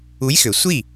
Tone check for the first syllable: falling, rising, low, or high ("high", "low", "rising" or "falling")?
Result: rising